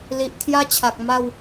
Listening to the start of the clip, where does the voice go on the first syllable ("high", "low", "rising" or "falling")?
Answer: low